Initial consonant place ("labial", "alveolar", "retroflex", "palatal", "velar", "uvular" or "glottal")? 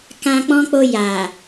velar